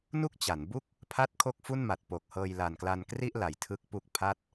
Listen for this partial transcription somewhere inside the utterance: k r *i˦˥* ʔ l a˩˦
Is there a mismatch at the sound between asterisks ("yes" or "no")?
yes